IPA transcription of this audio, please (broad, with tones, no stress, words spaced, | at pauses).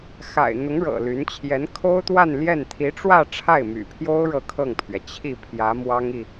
xa̰˨˩ɪ̯ n̪ʊ˧˥ŋ ɻɤ̰˨˩ly˧˥n t͡ɕʰjɛ˧˥nkʰo˥ʊ̯t̪wa˥˧nljɛ˥˩n t̪ʰi˧˥ʈ͡ʂwä˥˧ ʈ͡ʂʰa˥˩ɪ̯my̰˨˩pʰjo˥ʊ̯ ɻɤ˥˧kʰɤ˥˩ŋpʰɥɛ˩ t͡ɕʰi˥˩pʰjä˧˥ mwɑ˥ŋi˨